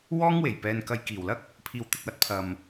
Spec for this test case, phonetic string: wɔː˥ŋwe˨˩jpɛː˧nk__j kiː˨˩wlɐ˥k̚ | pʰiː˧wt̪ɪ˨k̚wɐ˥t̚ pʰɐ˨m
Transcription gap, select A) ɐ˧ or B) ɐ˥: A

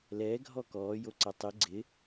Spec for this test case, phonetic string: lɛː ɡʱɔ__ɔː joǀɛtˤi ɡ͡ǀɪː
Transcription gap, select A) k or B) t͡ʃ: A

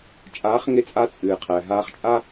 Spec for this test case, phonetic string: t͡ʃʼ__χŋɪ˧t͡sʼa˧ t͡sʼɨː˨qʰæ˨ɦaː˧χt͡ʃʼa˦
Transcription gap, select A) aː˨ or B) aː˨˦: B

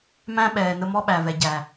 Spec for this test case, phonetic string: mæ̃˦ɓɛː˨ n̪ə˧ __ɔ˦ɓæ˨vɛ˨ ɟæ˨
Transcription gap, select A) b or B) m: B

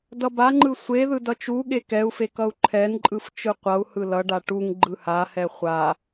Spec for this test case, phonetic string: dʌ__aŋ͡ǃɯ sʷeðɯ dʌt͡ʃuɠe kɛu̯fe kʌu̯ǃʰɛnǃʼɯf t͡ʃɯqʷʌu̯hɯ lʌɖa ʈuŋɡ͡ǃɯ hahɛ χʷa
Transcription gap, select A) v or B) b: B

